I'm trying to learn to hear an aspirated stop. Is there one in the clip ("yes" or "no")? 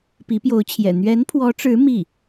yes